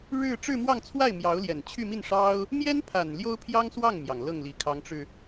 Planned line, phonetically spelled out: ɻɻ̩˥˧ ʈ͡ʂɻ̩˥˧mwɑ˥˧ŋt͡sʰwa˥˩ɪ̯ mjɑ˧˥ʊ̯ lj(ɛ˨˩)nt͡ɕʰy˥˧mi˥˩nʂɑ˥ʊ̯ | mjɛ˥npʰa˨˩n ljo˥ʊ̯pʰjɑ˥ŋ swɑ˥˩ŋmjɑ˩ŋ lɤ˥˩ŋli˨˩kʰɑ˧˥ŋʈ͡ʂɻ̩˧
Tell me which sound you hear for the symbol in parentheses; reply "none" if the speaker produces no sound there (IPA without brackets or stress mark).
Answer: ɛ˨˩